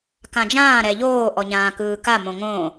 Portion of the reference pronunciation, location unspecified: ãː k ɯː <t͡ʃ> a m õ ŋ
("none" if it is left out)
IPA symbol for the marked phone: k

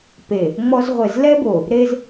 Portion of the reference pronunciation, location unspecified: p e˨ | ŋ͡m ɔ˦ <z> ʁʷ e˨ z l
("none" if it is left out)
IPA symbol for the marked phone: z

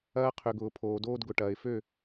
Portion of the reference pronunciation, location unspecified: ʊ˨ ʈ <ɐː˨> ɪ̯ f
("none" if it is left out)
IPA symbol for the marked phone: ɐː˨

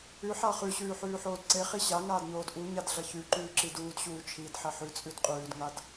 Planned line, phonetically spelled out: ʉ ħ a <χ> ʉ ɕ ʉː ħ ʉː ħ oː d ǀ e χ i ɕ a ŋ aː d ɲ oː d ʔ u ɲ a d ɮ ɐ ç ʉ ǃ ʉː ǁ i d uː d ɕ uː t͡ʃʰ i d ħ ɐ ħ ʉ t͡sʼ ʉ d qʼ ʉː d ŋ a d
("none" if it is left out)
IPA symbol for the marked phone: χ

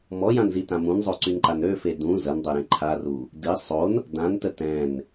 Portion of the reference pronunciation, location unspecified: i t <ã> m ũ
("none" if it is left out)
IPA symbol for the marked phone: ã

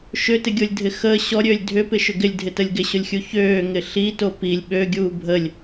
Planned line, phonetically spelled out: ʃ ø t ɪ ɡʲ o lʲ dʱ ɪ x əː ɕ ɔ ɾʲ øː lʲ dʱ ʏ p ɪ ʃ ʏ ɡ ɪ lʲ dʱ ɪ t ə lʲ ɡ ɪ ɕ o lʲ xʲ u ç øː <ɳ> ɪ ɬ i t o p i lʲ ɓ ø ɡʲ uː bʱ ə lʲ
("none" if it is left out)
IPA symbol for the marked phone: ŋ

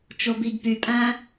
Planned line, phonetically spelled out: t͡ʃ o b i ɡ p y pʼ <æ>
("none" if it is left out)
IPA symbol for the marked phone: æ̃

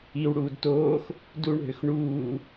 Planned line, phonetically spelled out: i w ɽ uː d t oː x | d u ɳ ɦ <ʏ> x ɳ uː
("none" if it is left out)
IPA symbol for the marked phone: ʏ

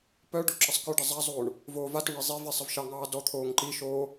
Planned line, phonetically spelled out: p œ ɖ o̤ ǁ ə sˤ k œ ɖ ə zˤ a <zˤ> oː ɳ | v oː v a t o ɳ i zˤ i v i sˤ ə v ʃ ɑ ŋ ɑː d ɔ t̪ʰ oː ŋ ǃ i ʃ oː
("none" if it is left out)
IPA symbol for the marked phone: zˤ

